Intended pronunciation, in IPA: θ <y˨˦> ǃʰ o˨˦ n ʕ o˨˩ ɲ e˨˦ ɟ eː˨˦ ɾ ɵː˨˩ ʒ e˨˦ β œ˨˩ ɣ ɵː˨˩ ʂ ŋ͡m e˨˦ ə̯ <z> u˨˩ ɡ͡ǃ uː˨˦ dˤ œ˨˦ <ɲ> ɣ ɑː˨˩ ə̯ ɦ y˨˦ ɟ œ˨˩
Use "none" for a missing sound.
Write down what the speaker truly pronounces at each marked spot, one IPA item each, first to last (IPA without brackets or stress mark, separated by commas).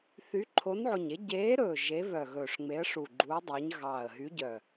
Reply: y˨˦, ʂ, ɲ